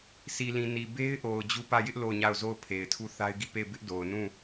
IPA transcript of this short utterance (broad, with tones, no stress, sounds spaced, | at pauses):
s i˨ l ĩ˨ n i˨ b e˦ ɪ̯ ʔ o˨ ʊ̯ d͡ʑ u˦˨ p ä˦˨ j ɪ˦ ʔ l o˦˨ ʊ̯ ɲ a˦˨ ʊ̯ z o˦˨ ʊ̯ pʰ e˨ ɪ̯ tʰ u˦˨ θ a˦ ɪ̯ ɡ i˦˨ p e˦˨ ɪ̯ b ɪ˦ ʔ d o˨ ʊ̯ n ũ˦˨